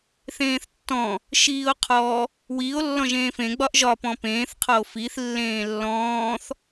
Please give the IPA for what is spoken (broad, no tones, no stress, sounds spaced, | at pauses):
θ ẽː θ tː ɔ̃ | ʃ iː o̯ qʰ ɔ | w iː o̯ lː ɔ̃ ʒ ẽː f ẽ ɡ͡b ɒ ʔ ʒ ɒ p ɔ̃ p ẽː θ qʰ ɔ o̯ f i θ lː ẽː lː ɔ̃ː θ